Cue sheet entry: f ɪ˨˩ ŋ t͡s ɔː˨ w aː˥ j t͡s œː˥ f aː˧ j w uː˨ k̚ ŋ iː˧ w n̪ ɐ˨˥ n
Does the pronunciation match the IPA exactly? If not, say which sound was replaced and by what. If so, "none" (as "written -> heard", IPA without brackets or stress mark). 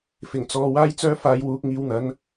none